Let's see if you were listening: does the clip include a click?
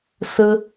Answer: no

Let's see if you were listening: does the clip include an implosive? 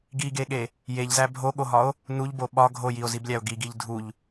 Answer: yes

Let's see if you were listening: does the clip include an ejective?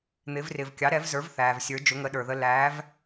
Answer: no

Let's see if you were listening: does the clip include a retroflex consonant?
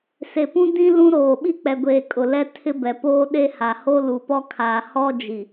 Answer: no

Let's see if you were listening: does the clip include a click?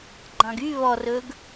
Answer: yes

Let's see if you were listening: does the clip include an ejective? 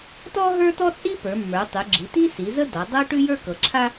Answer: yes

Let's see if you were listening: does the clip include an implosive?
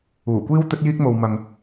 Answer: no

